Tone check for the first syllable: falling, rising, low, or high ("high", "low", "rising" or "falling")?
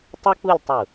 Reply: high